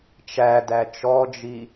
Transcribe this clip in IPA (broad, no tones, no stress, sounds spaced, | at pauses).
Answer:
t͡ʃ æ d æ t͡ʃ ɔ d͡ʒ i